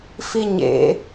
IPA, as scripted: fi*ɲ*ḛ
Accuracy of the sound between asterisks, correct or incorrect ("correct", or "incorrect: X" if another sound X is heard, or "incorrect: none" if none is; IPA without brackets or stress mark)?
correct